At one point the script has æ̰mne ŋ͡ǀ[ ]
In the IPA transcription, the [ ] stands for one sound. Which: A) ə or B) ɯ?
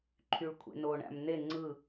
B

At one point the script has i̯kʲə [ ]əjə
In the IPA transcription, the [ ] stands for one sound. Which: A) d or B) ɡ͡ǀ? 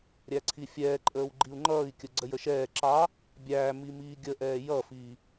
B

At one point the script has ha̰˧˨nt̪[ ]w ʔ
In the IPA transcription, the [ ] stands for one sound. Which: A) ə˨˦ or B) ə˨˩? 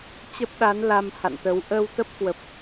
A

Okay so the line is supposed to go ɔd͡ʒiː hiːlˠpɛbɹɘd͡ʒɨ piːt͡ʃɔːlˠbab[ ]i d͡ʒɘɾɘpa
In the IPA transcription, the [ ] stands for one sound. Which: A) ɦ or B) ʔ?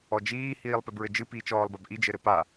B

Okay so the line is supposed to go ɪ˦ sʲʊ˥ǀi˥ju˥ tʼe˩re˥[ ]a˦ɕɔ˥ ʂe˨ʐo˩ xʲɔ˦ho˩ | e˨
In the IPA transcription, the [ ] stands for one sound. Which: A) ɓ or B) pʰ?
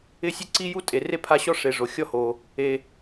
B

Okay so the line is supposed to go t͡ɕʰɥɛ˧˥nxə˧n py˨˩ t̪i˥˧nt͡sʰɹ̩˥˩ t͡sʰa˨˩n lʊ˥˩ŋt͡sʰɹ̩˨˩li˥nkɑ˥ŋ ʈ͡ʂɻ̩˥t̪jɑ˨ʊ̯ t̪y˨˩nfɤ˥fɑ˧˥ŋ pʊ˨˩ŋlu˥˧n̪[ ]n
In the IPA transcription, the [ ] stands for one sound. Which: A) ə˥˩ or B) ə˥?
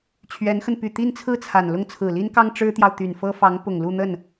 A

